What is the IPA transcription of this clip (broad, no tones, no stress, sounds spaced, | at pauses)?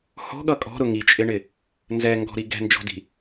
h ɔ̤ ɠ ʌ kʼ ɔ̤ ɾ ʊ ŋ i t͡ʃʼ ɪ ɳ ɪ | n z ɛ ŋ ɡ ɔ̤ ɾ i ɡ ɛ̤ n d͡ʒ ɔ̤ d i̤